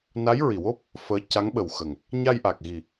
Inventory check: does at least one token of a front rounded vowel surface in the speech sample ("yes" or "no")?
no